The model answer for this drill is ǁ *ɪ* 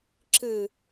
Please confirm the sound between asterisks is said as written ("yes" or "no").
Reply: no